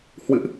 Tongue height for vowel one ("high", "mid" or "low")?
high